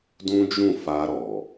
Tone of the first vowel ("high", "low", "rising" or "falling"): high